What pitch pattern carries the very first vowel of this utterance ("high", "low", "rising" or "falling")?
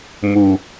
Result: low